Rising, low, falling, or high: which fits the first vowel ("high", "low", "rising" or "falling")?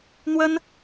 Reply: high